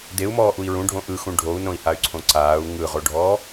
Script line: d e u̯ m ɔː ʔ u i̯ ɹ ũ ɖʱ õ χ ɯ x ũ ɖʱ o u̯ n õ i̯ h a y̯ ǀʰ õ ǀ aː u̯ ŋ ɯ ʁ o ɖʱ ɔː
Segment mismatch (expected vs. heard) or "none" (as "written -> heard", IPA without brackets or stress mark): χ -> ʔ